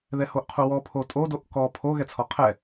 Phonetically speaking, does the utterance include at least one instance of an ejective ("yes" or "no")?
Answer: yes